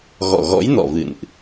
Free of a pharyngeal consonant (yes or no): yes